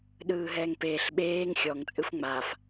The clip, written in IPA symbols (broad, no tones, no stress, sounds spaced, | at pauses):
ɗ ɯː ɦ ɛː ŋ p eː ɬ ɓ eː ŋ xʲ ɔ ŋ t͡sʼ ɯ f ŋ͡m a f